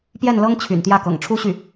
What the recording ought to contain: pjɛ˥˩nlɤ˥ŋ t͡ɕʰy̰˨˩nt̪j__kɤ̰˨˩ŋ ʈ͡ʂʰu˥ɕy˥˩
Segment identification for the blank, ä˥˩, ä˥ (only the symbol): ä˥˩